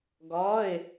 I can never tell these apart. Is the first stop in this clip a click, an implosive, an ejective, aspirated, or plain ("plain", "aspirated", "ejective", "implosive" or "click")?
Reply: plain